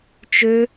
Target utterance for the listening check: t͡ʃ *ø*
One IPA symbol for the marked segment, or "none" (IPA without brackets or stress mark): ø